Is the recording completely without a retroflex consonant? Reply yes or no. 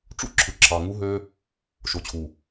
no